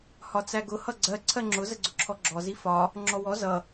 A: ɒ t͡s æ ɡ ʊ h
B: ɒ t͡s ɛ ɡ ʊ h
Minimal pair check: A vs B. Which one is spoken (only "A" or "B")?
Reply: A